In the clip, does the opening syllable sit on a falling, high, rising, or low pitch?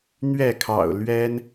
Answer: falling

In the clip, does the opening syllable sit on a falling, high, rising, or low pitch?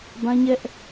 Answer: high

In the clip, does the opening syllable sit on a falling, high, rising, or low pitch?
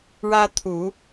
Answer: high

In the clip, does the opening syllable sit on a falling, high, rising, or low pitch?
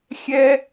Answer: high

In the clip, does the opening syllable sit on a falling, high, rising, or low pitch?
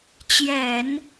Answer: low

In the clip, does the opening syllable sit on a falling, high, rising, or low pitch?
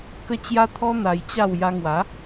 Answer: high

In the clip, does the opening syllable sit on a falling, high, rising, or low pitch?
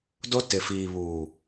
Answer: high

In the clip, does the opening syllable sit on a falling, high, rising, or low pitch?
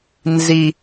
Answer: low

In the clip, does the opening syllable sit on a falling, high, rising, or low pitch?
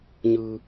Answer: low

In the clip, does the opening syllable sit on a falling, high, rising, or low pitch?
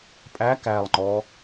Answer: rising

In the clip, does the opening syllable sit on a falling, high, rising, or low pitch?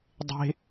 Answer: high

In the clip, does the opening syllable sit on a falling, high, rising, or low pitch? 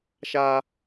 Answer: high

